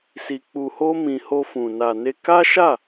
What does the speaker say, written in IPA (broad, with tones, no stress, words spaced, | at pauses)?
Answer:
si˧k͡pu˧ho˦mĩ˧ ho˧fũ˨ na˨ne˧ka˦ʃa˦˨